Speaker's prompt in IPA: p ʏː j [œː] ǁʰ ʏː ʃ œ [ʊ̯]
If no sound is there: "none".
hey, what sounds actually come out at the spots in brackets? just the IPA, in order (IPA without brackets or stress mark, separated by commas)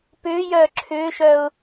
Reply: œː, ʊ̯